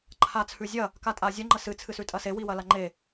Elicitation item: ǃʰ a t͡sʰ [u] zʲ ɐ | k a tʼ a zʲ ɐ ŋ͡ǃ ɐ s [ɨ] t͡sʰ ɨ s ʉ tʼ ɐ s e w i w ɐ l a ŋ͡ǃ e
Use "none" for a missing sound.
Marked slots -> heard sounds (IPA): ʉ, ɨ

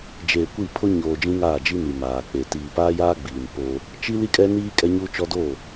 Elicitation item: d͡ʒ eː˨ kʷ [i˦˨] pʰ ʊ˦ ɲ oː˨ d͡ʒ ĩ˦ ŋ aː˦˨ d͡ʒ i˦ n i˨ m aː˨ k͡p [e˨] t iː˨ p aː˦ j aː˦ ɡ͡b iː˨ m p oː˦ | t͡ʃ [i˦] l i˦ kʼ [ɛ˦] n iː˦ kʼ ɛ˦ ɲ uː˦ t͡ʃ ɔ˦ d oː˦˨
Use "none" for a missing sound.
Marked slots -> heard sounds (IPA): i˦˨, e˨, i˦, ɛ˦

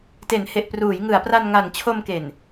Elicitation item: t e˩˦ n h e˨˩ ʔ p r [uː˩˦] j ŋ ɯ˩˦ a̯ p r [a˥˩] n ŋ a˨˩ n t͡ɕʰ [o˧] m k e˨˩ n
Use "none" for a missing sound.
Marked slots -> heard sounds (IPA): uː˩˦, a˧, o˧

